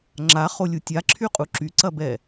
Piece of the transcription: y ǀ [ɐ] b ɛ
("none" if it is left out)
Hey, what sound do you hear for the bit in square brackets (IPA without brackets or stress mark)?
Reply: ɐ